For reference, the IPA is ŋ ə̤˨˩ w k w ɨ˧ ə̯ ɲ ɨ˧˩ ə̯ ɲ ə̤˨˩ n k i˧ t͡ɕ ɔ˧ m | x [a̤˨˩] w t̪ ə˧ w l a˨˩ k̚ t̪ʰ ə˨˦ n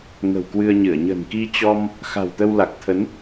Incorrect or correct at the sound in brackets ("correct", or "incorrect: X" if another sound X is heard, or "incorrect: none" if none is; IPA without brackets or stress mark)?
correct